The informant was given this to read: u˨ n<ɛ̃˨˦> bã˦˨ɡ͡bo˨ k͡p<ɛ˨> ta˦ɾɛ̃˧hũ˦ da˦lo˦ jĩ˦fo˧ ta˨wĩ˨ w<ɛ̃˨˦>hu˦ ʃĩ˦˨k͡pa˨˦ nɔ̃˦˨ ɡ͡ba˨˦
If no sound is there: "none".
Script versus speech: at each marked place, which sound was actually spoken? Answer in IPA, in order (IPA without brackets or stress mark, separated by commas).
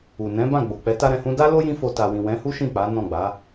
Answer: ɛ̃˨˦, ɛ˨˦, ɛ̃˨˦